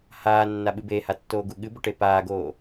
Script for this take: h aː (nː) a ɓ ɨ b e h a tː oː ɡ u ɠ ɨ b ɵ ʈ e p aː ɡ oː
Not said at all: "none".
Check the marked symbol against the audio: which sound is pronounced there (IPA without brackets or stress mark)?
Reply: nː